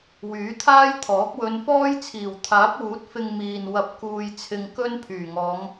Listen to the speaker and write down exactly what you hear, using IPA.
wyː˨˥t̪ʰaː˥jt̪ʰɔː˨˥k̚ wɵ˨˧nfɔː˥j t͡sʰiː˨˩wt̪ʰaː˨˥p̚wuː˨˥t̚ fɪ˧ŋ miː˨n wɐ˧p̚kuː˧jt͡sʰɪ˧ŋ kɵ˥n pʰyː˨˩ŋɔː˨˧ŋ

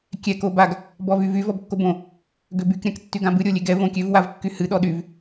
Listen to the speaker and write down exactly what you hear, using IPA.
kʲɛ kobaɡ | bɔvyvy vɔbkːobõ | ɡøbyk ɾʲãktːyɡãbɨ ɾʲolʲeɡɛ võkʲøv wavkːyhɨ ɗɔɗyv

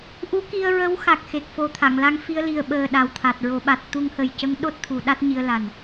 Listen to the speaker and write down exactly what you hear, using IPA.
ʔu˧˥ki˧ə̯ɹə˧˥w xa˨˩k̚xe˨˩k̚fo˨˩ t̪ʰa˨˩˨ŋla˧ŋ fi˧ə̯li˨˩ə̯ɓəː˨˩ ɗa˨˩wt̪ʰa˨˩t̚ɹo˨˩˦ ɓa˨˩t̚ t̪u˧ŋhə˨˩jcə˧˥ŋ ɗo˦˥t̚t̪ʰu˨˩˦ ɗa˦˥t̚ɲi˧ə̯la˨˩n

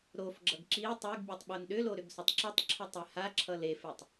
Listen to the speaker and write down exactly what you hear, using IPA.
ɾofɡ͡ǁʌɡ ǁi tˤeɡbʲɵtˤ ɓonɗʏlo ɾʏɡsɵtˤǁʌtˤǁʰɵ tˤehaǁʰʌ lefetˤ

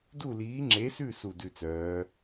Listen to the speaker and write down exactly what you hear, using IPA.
du˥˧liː˧˥ŋ͡ǁe˧˥sʉ˥˧ su˥˧dʉ˥˧t͡sœː˧˥

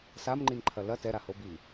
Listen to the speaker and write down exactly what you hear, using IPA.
samŋ͡ǃinǃʰɐ lɐ tɛɾaho bi

